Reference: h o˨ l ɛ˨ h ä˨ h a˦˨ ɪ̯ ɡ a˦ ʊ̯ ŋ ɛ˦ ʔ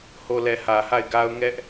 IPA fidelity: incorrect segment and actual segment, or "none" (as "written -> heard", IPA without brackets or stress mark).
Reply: none